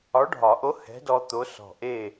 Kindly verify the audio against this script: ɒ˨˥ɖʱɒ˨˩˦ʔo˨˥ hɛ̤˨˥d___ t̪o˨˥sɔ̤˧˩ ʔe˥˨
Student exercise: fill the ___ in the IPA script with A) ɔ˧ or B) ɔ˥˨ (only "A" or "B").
A